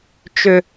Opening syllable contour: high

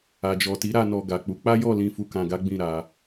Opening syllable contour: low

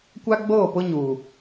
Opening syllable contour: high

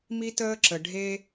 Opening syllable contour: high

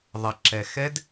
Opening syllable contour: low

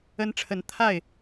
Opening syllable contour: high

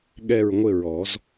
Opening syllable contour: falling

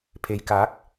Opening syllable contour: low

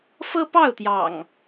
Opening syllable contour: high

